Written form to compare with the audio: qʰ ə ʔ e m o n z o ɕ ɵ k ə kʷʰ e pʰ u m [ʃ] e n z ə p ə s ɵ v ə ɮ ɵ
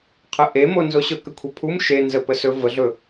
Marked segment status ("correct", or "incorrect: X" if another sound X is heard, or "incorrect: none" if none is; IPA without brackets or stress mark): correct